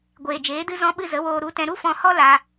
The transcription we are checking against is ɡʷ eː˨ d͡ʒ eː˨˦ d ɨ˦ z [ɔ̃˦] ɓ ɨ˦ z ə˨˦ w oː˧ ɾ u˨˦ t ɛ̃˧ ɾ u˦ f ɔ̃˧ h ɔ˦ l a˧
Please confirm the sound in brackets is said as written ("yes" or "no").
yes